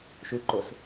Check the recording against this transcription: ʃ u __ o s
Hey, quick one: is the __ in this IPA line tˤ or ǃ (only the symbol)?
ǃ